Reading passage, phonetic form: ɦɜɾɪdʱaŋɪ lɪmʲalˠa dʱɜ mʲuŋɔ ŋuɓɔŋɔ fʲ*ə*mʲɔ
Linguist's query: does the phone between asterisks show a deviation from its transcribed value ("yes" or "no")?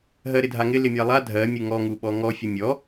no